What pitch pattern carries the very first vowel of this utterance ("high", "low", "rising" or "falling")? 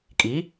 rising